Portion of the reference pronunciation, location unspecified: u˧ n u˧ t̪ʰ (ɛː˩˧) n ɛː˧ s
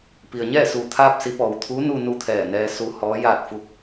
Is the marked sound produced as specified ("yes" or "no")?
no